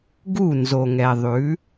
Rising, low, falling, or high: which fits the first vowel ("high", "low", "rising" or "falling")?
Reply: falling